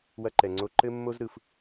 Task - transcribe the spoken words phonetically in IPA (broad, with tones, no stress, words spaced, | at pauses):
wɐ˧ǃɛ˩ŋ͡ǀo˧ǃɘ˥ mːo˥zɾɯ˩f